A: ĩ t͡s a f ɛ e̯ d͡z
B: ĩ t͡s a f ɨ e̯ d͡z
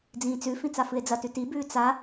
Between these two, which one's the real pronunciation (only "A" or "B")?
B